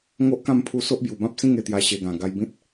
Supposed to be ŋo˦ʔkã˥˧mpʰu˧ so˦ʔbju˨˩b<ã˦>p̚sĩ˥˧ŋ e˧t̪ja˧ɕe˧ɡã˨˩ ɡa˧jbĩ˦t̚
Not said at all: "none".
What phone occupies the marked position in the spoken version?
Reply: ã˦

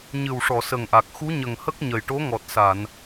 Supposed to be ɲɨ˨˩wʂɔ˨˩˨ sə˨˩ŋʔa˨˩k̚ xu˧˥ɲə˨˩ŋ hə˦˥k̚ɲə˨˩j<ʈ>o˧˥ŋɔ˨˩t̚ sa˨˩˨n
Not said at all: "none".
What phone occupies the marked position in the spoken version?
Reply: ʈ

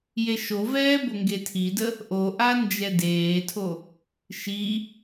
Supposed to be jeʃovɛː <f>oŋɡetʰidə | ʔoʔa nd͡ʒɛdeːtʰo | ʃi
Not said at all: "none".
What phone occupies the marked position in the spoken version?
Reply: b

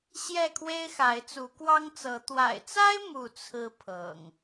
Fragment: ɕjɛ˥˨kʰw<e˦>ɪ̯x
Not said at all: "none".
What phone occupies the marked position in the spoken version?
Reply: e˦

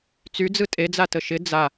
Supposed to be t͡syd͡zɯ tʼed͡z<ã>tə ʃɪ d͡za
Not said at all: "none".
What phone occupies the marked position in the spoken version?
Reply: a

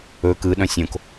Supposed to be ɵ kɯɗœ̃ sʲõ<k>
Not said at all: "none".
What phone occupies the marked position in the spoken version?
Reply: k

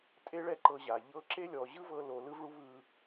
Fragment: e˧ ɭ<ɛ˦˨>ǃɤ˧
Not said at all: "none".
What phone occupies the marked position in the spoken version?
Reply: ɛ˦˨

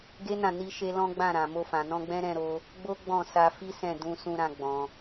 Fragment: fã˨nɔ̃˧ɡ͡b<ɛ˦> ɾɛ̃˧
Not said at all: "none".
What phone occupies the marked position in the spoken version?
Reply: ɛ̃˦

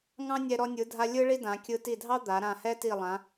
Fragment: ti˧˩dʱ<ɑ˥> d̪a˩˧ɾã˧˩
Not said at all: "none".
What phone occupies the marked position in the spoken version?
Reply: ɑ˥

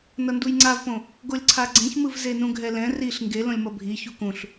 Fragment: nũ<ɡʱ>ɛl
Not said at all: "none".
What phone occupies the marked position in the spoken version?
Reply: ɡʱ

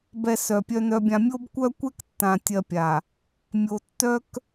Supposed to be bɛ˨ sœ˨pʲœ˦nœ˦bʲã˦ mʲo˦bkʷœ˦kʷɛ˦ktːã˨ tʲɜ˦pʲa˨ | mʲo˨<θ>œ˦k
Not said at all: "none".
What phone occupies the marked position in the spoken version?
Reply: tː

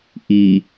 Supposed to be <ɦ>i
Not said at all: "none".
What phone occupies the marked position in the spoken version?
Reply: ʔ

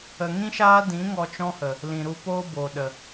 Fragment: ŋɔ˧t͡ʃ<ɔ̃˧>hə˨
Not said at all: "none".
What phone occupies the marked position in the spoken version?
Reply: ɔ̃˦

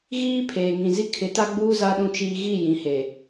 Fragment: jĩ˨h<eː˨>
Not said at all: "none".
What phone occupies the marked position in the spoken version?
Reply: eː˨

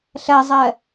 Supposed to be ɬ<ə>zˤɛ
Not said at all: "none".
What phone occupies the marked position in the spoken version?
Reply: ɛ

